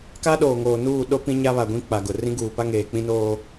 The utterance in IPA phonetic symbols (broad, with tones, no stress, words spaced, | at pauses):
ka˦ɗoː˨ŋoː˨nuː˦˨ ɗo˦pĩ˦ ɲa˦βa˨ ɡʷĩ˦ k͡pa˨ɡʊ˨ rĩ˦ɡuː˨pa˦ ŋeː˨k͡pĩ˦ noː˦